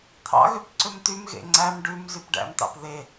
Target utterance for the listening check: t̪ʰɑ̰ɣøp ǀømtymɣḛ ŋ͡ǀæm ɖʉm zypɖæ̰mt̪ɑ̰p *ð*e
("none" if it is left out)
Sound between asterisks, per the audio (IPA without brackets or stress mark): ð